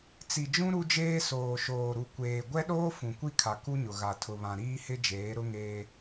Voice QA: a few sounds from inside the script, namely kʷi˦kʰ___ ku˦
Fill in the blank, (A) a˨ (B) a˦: A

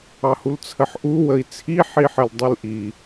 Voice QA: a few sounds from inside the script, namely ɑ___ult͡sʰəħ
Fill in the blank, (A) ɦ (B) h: B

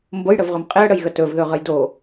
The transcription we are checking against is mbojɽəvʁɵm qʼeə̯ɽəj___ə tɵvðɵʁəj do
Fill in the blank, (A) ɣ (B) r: A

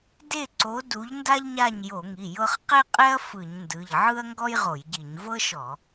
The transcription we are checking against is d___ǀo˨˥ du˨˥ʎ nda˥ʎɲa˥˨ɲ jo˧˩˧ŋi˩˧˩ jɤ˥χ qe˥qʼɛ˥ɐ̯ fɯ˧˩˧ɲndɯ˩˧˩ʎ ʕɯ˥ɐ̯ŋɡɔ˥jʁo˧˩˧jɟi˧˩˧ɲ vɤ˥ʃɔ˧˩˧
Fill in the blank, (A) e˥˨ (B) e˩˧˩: A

